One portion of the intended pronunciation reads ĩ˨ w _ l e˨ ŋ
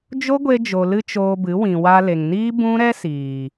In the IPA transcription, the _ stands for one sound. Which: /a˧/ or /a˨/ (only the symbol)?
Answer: a˧